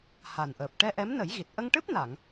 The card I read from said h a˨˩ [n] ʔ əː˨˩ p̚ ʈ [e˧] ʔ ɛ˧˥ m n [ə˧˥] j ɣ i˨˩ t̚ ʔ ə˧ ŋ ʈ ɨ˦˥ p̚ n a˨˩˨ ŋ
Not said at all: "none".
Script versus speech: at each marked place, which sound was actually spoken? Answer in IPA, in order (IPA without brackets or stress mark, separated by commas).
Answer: n, ɛ˧, ə˨˩˦